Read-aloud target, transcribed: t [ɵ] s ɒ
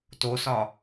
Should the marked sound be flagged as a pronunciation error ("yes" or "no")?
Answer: yes